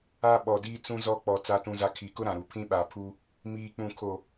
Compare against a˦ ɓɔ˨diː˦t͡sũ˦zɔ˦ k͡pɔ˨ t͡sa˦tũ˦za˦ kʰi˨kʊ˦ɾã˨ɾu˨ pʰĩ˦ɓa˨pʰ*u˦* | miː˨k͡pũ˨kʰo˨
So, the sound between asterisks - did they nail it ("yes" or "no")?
yes